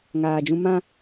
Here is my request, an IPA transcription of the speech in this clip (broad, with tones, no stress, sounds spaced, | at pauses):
ŋ aː˨ d͡ʒ ũ˧ m ã˦